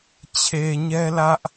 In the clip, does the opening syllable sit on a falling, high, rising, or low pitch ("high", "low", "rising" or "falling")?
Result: low